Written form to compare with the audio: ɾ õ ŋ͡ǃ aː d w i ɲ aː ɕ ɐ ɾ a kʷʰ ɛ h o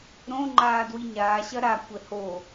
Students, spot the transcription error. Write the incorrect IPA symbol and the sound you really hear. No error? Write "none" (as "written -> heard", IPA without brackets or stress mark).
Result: none